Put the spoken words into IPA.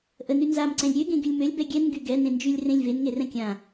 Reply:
ʔ ə n y n z a m ǀ ɛ̃ lʲ ɾʲ ø ɡ ẽ ɡ y lʲ m ø lʲ b ɛ ɡʲ ɛ n ɡ y ɡ ɛ n ẽ n d͡ʒ y lʲ r ẽ lʲ v e n ŋ e r ɛ̃ kʲ ã

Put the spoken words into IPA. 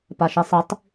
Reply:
p a ʃ i sˤ i tˤ

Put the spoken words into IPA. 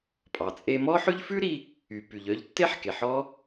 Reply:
pʼ ɑ˩ t͡sʼ e˧ m ɔ˥ ħ ʉ˥ ʎ f ʉ˥ ɾ i˧ | y˩ p y˩ ʎ œ˧ ʎ tː e˥ ħ k e˩ ħ ɔ˥

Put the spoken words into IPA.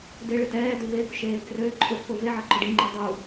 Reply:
d e ɭ ɪ t ɛː d ø v e ɡ ʊ ʃ eː ɡ r ø ǃʼ ʊ pʰ ʊ v e ʕ ɐ ǃ ʊ ɖ i ŋ͡ǃ ø dˤ u

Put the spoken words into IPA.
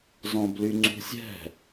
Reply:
z ɔ̃ b l y ŋ͡ǀ ṳ sʲ ɛ̤

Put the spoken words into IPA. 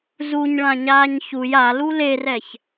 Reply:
z u ɲ ɭ ã ɲ aː ɲ ç u j a l u l e r ɛ ç

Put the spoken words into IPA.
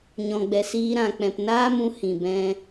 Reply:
ɲ ɔ̃˨ ɡ͡b ɛ˨ s iː˧ ɾ ã˨ k͡p ɛ̃˨ p n aː˦ m ũ˧ h ĩ˨ b ɛ̃˧

